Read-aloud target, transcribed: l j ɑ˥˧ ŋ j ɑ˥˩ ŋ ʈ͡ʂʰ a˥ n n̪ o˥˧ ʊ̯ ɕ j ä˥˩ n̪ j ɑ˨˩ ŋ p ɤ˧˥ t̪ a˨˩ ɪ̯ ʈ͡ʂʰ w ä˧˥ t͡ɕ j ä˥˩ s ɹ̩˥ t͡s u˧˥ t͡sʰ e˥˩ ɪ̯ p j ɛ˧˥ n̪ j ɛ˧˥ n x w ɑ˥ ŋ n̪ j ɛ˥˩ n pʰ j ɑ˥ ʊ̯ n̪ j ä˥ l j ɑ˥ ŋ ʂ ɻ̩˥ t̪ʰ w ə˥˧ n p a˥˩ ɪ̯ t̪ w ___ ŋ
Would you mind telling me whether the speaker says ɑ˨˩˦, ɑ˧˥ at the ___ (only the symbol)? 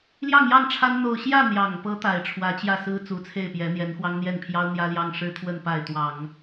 ɑ˨˩˦